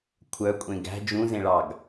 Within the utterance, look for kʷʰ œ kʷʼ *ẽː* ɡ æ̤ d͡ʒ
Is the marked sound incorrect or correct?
incorrect